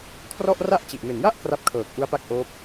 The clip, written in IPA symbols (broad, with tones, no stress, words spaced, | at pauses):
kʰrɔ˥˩ʔ ra˥˩ʔt͡ɕi˨˩ʔme˨˩n ja˥˩ʔ kra˦˥p̚kʰɤː˨˩k̚ʔu˦˥a̯pa˦˥k̚ ʔoː˦˥p̚